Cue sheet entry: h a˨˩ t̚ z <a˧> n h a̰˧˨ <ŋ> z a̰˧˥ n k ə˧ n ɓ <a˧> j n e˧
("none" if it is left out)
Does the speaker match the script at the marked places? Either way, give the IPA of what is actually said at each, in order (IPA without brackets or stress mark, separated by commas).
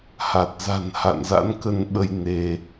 a̤˨˩, n, ə˧